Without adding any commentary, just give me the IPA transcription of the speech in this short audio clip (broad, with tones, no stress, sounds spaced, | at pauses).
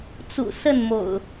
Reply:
t͡s ṵ˨˩ s ə˥˨ n m o̰˨˩ ʊ̯